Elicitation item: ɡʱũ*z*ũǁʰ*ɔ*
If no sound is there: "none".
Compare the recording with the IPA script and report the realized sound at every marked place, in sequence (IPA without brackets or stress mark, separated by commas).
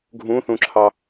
θ, ɑ